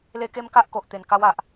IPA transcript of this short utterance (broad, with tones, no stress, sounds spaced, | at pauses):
l e˦ k e˦ m k a˦ ʔ k o˨ ʔ t̪ e˨˩ n k a˧ w a˨ ʔ